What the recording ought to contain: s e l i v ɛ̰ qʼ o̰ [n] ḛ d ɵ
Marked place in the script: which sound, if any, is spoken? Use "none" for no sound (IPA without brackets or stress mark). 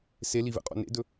n